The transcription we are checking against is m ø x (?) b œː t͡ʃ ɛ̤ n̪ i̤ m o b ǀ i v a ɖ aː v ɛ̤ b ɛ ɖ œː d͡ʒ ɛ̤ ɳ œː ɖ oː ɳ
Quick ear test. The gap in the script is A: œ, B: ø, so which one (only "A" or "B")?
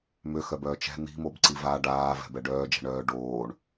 A